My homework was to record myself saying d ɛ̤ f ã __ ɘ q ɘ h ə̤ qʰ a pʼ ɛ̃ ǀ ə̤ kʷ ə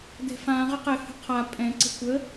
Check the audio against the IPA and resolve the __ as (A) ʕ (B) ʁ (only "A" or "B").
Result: B